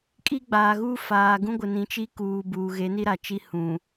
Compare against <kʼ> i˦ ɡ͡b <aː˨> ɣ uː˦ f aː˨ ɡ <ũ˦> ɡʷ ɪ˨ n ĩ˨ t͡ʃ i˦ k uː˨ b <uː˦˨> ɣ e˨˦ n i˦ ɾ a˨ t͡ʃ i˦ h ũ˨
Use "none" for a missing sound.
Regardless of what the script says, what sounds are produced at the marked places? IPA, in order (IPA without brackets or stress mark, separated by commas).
kʼ, aː˨, ũ˦, uː˨